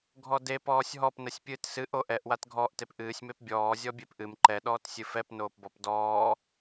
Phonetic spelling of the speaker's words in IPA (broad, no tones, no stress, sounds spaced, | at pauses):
ɡʱ ɔ d e p ɔː sʲ ɦ ɔ p n ə sʲ pʲ ɨː t s ɨ ʔ o ʔ ɛ ʔ w a t ɡʱ ɔ ʔ t e p ʔ ɨː sʲ m e p bʲ ɔː zʲ ɔ bʲ e p ʔ ɨ m ǃ ɛ ɗ ɔː t sʲ ɨ f ɛ p n oː p b ɔ p d ɔː